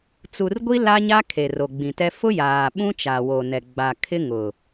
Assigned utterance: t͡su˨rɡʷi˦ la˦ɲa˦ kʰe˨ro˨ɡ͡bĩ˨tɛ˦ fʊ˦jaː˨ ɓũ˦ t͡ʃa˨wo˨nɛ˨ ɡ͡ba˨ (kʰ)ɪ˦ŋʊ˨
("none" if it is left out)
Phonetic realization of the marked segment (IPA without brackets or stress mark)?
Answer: kʰ